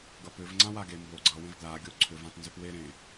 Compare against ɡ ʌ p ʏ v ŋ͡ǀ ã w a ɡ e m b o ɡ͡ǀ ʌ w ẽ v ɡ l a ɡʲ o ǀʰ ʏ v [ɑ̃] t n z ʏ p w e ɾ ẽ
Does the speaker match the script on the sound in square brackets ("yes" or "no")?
no